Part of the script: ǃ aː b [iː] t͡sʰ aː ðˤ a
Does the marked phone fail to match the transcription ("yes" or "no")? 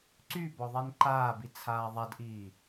yes